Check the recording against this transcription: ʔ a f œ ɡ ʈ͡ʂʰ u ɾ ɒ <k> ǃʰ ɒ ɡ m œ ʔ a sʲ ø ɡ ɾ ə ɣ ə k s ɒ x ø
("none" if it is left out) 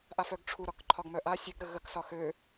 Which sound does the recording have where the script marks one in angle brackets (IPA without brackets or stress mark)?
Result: k